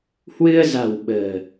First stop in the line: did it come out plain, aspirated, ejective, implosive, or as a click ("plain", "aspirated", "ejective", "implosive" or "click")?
implosive